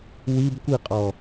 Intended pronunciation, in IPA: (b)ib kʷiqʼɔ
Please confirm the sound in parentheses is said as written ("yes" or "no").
no